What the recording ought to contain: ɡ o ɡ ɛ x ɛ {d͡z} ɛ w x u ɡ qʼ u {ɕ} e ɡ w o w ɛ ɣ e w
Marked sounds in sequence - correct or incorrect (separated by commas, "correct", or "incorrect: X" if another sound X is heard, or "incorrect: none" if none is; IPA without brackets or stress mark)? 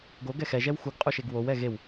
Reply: incorrect: ʒ, incorrect: ʃ